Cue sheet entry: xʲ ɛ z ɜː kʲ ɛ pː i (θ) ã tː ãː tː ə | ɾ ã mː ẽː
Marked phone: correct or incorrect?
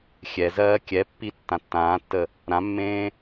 incorrect: tː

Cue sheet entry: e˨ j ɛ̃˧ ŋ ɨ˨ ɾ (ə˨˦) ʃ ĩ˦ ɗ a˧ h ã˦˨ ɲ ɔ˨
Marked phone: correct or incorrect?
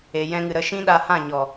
correct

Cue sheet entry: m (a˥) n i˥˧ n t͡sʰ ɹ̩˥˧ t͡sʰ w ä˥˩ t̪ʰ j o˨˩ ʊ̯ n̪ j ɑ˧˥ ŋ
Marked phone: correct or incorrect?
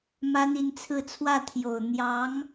correct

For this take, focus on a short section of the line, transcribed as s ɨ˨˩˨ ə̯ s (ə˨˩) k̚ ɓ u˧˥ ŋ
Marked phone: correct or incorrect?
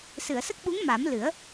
incorrect: ə˦˥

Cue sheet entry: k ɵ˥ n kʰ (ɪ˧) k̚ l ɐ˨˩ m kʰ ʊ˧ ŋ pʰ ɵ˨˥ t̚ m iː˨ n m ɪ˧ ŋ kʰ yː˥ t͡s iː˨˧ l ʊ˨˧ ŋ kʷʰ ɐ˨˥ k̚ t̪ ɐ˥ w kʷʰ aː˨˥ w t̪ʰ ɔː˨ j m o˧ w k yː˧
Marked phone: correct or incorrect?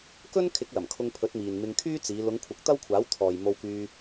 incorrect: ɪ˨˥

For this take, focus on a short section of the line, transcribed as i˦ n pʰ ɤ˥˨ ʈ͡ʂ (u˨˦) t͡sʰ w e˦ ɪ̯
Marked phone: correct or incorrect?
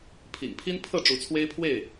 correct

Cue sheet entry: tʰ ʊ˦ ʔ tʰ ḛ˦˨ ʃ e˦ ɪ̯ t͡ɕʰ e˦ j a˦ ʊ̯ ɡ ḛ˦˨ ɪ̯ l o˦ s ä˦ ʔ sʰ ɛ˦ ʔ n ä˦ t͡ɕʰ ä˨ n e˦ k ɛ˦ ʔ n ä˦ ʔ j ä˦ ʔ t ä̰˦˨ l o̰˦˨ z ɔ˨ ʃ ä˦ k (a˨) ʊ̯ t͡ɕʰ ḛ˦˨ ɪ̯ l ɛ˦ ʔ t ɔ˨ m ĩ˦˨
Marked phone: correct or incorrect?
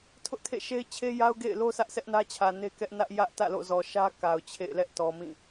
correct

